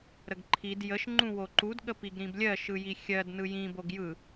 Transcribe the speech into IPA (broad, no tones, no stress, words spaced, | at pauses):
ɾəɡǃʰid jəʃ ŋ͡ǃũwoǃud ɠəpiɡɾĩblʲɜ ʃɯjixʲɜd nɯjĩ boɡjɯ